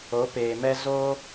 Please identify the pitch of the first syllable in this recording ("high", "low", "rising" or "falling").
rising